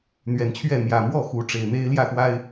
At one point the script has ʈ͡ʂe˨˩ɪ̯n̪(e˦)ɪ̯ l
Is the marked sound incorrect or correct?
correct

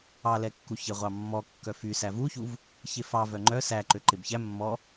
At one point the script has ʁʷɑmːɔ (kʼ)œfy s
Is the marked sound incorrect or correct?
incorrect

